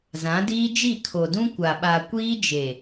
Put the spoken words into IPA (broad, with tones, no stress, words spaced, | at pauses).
zã˨˦diː˦d͡ʒi˦˨ kʰo˨dũ˦ kʷa˨ɓa˨kʷiː˦d͡ʒe˨